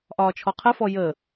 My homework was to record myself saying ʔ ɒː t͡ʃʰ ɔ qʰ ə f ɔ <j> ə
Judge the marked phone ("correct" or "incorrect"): correct